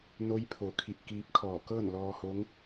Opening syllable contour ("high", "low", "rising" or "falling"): rising